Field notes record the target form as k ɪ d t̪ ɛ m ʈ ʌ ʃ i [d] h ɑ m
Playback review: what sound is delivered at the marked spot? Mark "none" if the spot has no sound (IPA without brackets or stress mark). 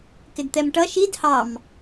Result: d